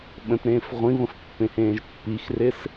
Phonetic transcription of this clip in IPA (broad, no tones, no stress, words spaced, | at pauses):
ɓə̃tɾẽːf ʁʷĩβə̃fpːẽhẽːʒ pːixrɪs